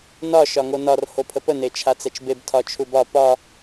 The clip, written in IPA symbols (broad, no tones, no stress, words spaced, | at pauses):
nɒ ʃɒŋonɒr hopʰəpə net͡ʃʰat͡sɛt͡ʃbeb tʰɒt͡ʃʰubɒ pɒ